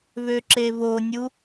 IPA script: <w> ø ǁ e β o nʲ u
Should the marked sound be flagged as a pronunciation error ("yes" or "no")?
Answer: yes